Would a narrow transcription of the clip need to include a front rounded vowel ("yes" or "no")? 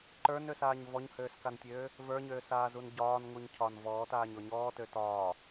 yes